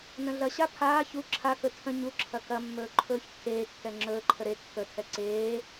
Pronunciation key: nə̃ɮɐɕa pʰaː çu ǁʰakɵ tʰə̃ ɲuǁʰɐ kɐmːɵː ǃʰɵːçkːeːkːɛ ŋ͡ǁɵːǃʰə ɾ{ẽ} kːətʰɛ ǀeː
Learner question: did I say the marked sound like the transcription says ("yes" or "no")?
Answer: no